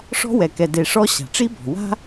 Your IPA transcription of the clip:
ʂ ɔ̤˥ w ɛ˩ k ɛ˨ d e˨ ʂ ɔ˥ ɕ a̤˩ ʈ͡ʂ i˦ b ɔ̤˩ w a̤˥

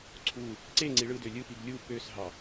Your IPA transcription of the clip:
ǀʰ u | ǀ e ŋ͡ǀ i ɭ ɯ d ø lʲ ɯ p i ɡ lʲ u p ø s ɦ ɑ

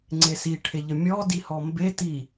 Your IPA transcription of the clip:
ŋ͡ǀ e s i ʈʰ e ʎ ə mʲ ɔ d i h ɔ m b e t i

